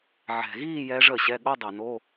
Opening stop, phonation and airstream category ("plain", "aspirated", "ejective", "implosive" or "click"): implosive